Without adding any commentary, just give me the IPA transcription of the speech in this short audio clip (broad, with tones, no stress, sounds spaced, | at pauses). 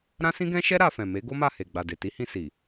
ɾ ã˦ s ĩ˦ ɡ ɛ̃˦ ʃ ɛ˦ ɾ a˧ f ɛ̃˨ m e˨˦ ɡ o˦ m a˦˨ h e˨ ɡ͡b a˨ d e˨ t i˨˦ h ĩ˧ s i˨